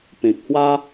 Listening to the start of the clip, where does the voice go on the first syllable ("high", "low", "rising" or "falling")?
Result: low